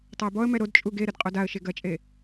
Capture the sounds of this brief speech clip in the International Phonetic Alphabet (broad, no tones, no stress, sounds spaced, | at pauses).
tˤ ɐ ɪ̯ b ɔ ə̯ m ɛ ɾ o d t͡ʃʼ u ɡ e ɾ ɘ d qʼ o d a ə̯ ʃ e ɡ ɐ t͡ʃʼ e